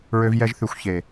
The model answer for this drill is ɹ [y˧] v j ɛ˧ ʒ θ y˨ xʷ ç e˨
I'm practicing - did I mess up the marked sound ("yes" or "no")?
yes